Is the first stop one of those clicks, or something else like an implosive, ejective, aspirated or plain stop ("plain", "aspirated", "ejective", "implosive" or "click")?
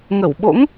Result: implosive